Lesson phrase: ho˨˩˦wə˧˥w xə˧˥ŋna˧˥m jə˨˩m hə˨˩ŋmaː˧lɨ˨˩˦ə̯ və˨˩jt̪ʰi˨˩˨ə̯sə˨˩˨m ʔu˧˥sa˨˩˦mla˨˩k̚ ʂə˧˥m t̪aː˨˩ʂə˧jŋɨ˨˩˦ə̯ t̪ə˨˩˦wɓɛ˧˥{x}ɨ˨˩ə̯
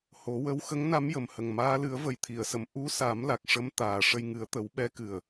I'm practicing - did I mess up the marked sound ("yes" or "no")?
yes